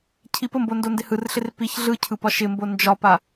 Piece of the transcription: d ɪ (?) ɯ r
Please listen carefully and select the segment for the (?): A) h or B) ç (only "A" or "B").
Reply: A